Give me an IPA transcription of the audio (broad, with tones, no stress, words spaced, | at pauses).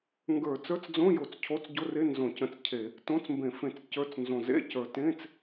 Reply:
ŋɡə˞˧˩˧ t͡sə˞˧˥˧t͡sd͡zõ˧˥˧jo˨˩t͡s cʰo˧˥˧t͡sɟo˧˥˧re˧˥˧ nzõ˧˩˧cə̃˧˩˧t͡scʰe˧˩˧ | tõ˧˥˧t͡smbẽ˧˩˧fẽ˧˩˧t͡s cə˞˧˥˧t͡s nzõ˨˩zḛ˧˥˧ cə˞˨˩tẽ˧˥˧t͡s